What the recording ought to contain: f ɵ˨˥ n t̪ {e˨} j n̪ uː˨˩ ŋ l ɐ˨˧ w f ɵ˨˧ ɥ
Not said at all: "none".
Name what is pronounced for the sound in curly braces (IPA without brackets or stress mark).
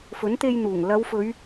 e˧